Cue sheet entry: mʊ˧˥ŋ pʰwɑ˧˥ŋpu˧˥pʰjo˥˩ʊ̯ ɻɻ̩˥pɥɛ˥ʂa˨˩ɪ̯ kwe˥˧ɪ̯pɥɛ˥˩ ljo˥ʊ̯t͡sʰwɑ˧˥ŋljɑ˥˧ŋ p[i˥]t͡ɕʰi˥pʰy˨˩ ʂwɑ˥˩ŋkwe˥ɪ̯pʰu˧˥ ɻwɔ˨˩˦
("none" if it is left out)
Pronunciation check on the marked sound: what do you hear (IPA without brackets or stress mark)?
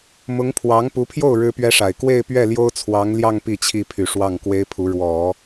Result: i˥˩